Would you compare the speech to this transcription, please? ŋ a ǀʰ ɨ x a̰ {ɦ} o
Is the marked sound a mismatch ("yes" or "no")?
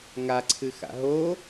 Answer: no